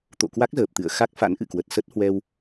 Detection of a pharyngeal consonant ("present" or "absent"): absent